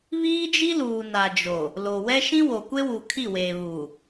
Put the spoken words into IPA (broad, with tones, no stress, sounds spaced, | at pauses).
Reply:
β iː˦ d͡ʒ i˦ l uː˨ n a˨ d͡ʒ o˨ | l o˨ w ɛ˦ ʃ ĩ˦ w o˨ kʷ e˦ w u˨ kʰ i˦˨ w eː˨ β uː˨